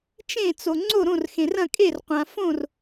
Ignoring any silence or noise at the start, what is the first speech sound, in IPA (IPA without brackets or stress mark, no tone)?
t͡ʃ